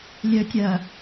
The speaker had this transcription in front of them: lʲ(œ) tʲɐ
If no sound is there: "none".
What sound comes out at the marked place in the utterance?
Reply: œ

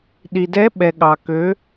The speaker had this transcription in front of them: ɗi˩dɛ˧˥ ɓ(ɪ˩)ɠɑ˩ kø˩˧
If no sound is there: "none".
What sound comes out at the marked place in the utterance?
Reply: ɛ˩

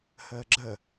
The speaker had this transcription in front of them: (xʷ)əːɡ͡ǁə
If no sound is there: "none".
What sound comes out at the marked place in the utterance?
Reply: h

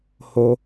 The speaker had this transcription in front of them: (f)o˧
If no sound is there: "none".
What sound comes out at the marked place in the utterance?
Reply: h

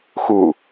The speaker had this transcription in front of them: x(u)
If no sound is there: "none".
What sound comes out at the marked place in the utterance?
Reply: u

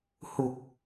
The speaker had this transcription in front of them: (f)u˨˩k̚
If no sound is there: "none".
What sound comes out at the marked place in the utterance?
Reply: h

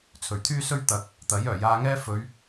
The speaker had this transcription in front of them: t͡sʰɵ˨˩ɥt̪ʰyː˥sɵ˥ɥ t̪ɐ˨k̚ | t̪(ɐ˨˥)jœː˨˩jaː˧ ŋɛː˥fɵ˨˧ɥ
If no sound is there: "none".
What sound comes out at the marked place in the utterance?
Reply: ɐ˨˥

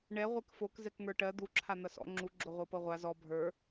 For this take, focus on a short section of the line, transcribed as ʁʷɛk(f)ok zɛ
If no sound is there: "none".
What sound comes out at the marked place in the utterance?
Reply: f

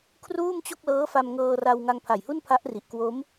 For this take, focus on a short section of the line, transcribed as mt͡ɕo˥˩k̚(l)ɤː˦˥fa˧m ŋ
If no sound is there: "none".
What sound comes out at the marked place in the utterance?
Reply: l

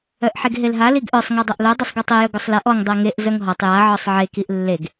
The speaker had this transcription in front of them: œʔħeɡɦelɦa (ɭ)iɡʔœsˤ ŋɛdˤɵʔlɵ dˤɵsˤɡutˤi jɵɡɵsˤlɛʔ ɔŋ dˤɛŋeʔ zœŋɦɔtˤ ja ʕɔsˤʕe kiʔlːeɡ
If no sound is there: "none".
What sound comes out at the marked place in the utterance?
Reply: l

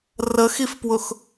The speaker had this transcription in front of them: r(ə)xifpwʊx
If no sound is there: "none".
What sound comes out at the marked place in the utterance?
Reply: ə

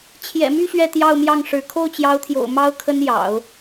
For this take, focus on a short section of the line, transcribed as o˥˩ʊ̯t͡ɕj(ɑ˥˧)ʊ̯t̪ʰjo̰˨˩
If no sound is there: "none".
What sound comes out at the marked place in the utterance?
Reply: ɑ˧˥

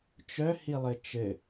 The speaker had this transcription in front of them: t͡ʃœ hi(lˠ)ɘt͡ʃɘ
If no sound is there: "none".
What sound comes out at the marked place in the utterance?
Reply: lˠ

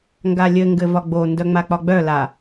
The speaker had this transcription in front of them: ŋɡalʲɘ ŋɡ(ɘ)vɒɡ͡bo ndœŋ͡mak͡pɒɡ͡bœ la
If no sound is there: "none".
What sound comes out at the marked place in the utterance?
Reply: ɘ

